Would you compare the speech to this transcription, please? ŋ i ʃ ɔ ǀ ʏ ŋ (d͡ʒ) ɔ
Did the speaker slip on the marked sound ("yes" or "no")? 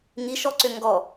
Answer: yes